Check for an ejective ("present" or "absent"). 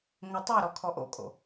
present